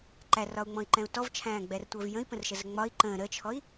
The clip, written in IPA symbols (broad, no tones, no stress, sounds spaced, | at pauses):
ǃ æ r ɒ u̯ ŋ͡m ɔ̃ i̯ ǃ ɛ̃ u̯ t ɔ v t͡ʃʰ æ̃ː ɡ͡b ɛ r tʷ əː v j ə̃ i̯ p ə̃ r ʃ ə z ə ŋ͡m ɒ i̯ ǃ ə̃ː ɾ ə t͡ʃʰ ɔ i̯